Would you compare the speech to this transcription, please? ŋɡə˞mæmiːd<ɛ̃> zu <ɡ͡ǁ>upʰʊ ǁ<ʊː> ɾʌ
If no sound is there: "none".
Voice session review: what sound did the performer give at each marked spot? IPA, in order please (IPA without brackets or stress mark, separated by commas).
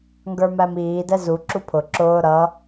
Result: ɛ, ǁ, ʊː